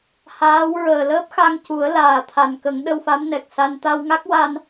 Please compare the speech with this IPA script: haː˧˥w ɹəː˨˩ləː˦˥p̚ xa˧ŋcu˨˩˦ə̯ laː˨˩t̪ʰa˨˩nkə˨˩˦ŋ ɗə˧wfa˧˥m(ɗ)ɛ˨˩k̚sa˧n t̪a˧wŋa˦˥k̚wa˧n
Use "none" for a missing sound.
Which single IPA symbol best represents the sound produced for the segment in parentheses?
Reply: n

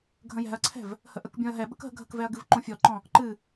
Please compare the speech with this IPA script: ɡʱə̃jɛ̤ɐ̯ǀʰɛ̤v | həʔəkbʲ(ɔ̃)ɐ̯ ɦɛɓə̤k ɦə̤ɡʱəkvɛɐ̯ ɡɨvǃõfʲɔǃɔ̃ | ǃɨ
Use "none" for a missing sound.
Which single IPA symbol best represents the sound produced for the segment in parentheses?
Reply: ɔ̃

